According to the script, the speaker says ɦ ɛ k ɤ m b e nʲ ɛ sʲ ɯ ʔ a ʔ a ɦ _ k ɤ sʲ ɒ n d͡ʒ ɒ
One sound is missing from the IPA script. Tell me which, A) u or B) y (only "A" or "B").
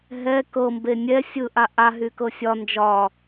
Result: B